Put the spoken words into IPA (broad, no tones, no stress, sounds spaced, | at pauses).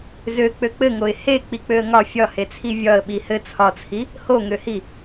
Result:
z ø k͡p ø k͡p ɘ ŋ o ɪ̯ h e k͡p i k͡p ø ə̯ ŋ ɒ fʲ ɒ h e t͡sʰ i vʲ ɒ ə̯ ɓ i h ɘ t͡sʰ ɒ t͡sʰ i | h o ŋ ø h i